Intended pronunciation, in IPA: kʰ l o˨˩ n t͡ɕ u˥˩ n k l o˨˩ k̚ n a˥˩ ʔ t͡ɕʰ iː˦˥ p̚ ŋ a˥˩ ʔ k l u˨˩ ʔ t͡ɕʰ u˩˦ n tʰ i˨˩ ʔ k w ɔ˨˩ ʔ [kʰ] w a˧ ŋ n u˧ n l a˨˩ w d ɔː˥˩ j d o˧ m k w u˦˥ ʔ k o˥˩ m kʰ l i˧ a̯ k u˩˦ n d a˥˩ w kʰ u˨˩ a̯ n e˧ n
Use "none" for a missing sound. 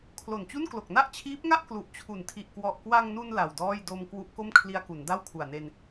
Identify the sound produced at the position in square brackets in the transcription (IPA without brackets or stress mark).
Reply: k